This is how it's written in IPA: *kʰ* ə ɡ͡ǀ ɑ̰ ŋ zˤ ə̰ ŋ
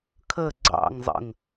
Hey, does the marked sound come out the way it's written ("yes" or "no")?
yes